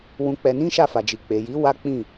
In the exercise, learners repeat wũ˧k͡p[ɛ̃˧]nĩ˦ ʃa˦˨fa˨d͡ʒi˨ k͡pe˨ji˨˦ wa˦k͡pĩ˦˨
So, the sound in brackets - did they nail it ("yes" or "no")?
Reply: no